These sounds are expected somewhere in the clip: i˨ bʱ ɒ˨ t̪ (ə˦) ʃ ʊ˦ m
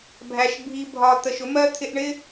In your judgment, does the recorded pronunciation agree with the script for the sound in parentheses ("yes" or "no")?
no